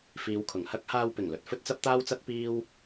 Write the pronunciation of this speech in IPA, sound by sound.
fiː˨˧wkʰʊ˨˩ŋhɐ˥k̚ haː˧wpɪ˨˩ŋlɵ˨t̚ fɵ˥t̚t͡sɐ˥p̚t̪aː˥wt͡sɐ˥t̚ piː˥w

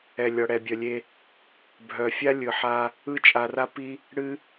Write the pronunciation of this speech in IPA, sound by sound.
ɛ˨ lʲɔ˨ɽɛ˨bʲœ˨lʲe˧ | bʱœ˨fʲa˦lʲɯ˨ ħa˧ | ɯ˧t͡ʃʼa˨ra˧pi˧ | ɽɨ˦

